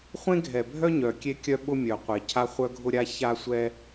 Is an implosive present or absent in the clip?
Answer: present